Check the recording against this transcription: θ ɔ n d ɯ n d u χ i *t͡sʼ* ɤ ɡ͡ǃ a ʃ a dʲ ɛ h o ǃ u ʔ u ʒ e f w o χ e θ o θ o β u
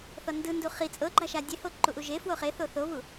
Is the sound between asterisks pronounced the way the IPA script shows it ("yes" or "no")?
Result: yes